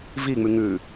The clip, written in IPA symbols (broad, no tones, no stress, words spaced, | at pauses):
viŋ͡mʉ ŋʉ